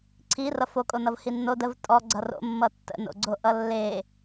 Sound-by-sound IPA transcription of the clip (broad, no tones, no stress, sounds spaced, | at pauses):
ǀʰ i r ʌ f o kʼ o n ʌ v h i nː o d ə v tʼ ɔ ɡ͡ǀ ʌ r o̰ mː ʌ tː ə̰ n o̰ ɡ͡ǀ o ʔ ʌ lː e